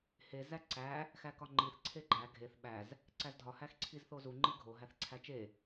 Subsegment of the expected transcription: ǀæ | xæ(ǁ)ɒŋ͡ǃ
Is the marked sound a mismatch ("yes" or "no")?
yes